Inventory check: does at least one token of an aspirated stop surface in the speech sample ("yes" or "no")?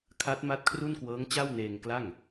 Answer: yes